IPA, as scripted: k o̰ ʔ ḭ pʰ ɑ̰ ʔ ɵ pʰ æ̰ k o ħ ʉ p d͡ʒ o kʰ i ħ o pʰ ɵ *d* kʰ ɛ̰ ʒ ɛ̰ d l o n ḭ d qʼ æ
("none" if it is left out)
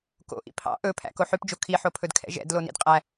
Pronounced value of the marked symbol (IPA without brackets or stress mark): d